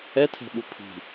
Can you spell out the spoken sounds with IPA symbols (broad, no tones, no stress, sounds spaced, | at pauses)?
ɛ tʰ ɛ̤ ɓ u pʰ i̤